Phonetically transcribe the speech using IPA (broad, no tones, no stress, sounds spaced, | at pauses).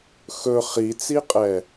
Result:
x ɵ χ i t͡s i qʼ ɛ